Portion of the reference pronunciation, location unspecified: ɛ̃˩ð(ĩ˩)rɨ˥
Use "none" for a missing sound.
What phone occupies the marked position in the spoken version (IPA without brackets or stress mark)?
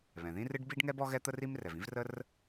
ĩ˥